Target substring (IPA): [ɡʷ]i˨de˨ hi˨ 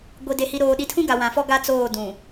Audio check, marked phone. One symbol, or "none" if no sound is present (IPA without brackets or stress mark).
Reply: ɡʷ